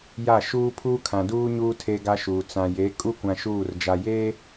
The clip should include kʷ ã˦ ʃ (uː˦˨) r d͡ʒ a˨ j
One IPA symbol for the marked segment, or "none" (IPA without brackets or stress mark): uː˦˨